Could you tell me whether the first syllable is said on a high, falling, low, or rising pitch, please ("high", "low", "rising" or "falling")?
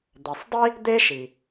low